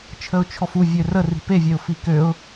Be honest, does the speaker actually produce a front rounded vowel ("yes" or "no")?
yes